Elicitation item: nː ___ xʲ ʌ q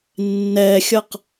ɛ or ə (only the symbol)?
ɛ